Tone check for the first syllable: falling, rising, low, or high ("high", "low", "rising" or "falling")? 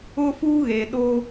high